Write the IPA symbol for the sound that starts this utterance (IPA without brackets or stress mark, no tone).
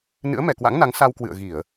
n